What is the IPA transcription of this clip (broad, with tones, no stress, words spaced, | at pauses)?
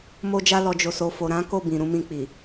mo˧d͡ʒa˧lɔ˨ d͡ʒo˨so˨fo˨ ɾã˨˦ ko˦˨ bĩ˨ɾũ˨˦ mĩ˧k͡pi˨